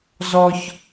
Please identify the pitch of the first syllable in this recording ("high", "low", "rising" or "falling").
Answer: high